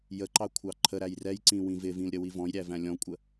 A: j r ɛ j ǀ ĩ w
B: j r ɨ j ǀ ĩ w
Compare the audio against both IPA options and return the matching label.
A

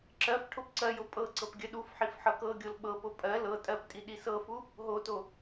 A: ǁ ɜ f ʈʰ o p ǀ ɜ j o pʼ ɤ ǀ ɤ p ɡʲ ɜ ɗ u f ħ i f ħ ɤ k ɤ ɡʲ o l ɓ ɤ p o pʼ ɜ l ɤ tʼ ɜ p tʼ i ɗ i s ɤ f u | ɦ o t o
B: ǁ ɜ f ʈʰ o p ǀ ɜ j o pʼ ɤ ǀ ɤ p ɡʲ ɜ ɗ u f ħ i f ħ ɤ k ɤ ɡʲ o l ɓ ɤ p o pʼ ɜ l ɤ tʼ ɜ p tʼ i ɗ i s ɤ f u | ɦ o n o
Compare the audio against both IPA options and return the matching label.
A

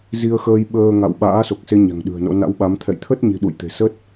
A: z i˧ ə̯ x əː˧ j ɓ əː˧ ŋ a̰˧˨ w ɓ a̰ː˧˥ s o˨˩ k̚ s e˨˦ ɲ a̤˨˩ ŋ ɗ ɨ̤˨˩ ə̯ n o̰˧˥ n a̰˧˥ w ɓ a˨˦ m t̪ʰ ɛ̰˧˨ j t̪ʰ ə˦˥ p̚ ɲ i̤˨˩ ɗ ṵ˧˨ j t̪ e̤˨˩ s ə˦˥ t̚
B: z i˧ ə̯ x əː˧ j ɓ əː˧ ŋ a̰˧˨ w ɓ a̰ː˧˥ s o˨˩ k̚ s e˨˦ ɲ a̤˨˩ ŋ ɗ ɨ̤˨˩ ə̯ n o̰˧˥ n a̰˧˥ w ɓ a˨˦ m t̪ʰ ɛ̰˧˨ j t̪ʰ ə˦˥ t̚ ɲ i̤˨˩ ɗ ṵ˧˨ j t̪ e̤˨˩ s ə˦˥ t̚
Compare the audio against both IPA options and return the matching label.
B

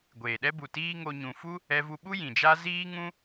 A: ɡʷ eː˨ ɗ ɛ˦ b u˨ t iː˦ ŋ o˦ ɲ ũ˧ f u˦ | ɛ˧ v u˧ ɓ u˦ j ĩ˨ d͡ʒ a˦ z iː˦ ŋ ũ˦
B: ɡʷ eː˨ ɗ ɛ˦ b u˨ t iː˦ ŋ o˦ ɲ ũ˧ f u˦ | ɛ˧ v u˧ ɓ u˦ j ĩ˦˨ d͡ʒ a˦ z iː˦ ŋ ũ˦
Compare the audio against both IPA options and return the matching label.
A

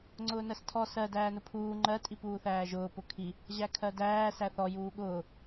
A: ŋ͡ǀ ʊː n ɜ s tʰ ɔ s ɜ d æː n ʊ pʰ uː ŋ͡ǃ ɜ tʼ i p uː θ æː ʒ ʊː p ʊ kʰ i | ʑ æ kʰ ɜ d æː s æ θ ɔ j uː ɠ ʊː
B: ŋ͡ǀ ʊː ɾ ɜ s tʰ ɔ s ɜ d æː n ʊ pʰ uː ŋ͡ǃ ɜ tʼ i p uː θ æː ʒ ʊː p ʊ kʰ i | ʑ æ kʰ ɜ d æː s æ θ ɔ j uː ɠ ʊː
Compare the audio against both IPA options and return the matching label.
A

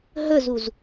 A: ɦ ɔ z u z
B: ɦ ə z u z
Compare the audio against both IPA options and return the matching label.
B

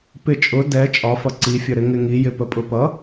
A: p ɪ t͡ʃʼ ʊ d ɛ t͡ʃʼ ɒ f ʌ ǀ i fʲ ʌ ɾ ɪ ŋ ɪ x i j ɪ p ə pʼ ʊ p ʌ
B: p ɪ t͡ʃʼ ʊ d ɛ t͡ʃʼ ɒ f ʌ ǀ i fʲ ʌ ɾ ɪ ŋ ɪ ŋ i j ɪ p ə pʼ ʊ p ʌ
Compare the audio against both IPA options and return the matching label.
B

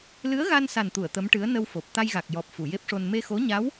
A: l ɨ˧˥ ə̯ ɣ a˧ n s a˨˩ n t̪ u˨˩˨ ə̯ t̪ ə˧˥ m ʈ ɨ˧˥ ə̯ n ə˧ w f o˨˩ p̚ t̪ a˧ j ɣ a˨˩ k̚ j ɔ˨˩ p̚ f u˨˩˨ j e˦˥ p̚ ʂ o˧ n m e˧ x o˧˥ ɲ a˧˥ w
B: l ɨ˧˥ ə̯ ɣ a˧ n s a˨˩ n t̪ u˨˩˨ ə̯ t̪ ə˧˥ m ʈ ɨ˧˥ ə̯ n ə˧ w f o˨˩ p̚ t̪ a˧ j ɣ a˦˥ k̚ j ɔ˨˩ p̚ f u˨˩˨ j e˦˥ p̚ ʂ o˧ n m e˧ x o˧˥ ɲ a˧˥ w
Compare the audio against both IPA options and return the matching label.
A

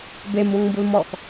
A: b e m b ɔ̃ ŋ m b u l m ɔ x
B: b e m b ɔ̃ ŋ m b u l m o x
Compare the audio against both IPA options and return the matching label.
A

